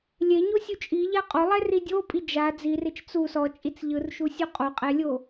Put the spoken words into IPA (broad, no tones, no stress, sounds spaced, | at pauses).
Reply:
lʲ e ɲ o sʲ u t͡ʃʼ i ʎ a qʼ o lˠ ɛ r i dʲ o pʼ i d͡ʒ a d͡z i r e t͡ʃ t͡s u s ɔ t͡ʃʼ i t͡s ʎ ɯ r ʃ u sʲ o qʼ o qʼ ɛ lʲ o